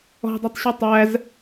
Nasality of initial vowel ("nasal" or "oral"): oral